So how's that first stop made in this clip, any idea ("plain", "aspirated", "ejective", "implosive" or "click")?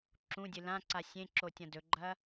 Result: click